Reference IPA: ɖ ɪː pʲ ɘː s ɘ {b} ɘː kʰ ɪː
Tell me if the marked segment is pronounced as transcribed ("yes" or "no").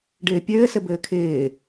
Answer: yes